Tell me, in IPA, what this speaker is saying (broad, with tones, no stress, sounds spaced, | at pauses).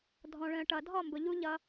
dʱ ɔ̃˨ ɭ ə̃ː˨ ʈ ʌ˨ dʱ ɔ˦˨ m b ʊ˨ ʎ u˦ ʎ ʌ˦